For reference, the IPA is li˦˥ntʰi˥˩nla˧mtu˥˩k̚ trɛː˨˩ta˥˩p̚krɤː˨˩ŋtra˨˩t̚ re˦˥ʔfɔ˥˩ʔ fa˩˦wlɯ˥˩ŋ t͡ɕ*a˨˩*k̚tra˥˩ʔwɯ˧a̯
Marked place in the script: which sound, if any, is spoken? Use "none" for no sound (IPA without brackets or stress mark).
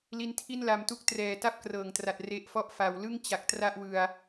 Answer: a˨˩